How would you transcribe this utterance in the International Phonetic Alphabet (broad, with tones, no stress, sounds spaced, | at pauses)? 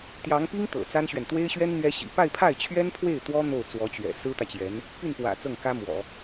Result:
t̪ j ɑ˧˥ ŋ p i˥ ŋ t̪ ɤ̰˨˩ t͡s a˥ n ɕ ɥ ɛ˨ n t̪ w e˥ ɪ̯ ɕ ɥ ɛ˥ n n̪ ɥ ɛ˥ ɕ ḭ˨˩ p a˥˧ ɪ̯ pʰ a˥˩ ɪ̯ t͡ɕʰ ɥ ɛ˥ n pʰ w e˥˩ ɪ̯ t̪ w ɔ˥ n̪ o˥˩ ʊ̯ t͡s w ɔ˧˥ t͡ɕ ɥ ɛ̰˨˩ s ɹ̩˥ t̪ ä˨ t͡ɕ j ɛ˧˥ n | p y˥˩ n p w ä̰˨˩ t͡s ɤ˥˩ ŋ k ä˥ m w ɔ̰˨˩˦